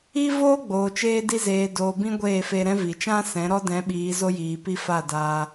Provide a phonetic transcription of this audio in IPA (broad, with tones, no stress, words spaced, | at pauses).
i˦voː˦ɡ͡boː˨ t͡ʃeː˧di˧zeː˨doː˨ bĩ˦ɡʷeː˦˨feː˧ɾɛ̃˦ vi˨t͡ʃã˦sɛ̃˨˦ ɾɔ˦dɛ̃˨˦ ɓiː˨˦zo˦jiː˨pi˦ fa˦˨daː˧